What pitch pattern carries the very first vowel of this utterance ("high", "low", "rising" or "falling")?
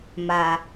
low